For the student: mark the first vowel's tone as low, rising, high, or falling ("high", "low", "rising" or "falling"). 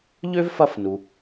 high